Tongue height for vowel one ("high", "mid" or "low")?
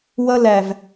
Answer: mid